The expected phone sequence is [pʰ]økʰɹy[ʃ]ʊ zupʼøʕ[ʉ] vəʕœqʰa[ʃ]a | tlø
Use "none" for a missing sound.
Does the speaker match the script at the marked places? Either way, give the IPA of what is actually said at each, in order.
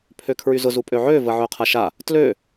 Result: pʰ, z, ø, ʃ

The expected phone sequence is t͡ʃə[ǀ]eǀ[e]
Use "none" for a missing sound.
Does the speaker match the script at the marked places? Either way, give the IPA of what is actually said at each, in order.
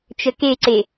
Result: k, e

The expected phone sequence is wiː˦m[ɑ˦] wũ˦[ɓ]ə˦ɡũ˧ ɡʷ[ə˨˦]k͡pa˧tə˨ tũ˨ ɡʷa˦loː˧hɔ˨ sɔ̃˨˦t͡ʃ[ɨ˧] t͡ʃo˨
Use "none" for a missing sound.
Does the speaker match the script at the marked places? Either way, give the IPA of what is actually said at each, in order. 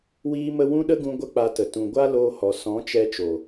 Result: ə˦, ɗ, ə˦, ɛ˧

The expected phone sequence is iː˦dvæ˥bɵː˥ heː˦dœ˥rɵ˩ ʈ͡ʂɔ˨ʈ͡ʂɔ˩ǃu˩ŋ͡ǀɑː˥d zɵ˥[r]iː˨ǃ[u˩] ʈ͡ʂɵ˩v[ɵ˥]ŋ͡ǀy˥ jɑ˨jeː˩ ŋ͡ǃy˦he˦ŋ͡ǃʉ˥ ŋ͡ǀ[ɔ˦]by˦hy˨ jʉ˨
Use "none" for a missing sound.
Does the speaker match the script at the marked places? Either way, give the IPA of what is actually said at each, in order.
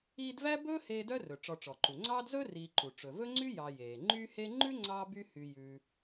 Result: r, u˩, ɵ˥, ɑ˦

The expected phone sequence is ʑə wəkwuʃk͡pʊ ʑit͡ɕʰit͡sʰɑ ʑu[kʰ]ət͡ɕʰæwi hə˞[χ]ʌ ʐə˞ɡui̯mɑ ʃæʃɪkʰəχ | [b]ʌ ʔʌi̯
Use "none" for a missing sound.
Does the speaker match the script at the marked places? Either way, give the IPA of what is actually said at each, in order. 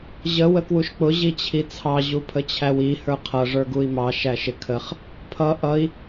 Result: pʰ, qʰ, pʰ

